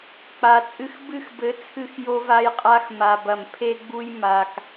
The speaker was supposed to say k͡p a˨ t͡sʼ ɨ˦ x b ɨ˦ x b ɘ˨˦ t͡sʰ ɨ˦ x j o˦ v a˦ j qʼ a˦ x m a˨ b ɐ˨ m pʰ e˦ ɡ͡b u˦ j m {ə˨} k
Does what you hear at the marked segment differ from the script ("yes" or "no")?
yes